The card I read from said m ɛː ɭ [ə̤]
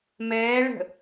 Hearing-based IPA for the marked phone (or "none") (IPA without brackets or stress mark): ə̤